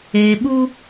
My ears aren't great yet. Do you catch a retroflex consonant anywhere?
no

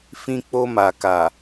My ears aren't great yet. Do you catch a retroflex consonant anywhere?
no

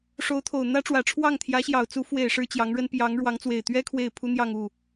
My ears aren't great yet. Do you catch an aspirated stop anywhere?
yes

